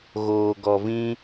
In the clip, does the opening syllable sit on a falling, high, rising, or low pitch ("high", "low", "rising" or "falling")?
low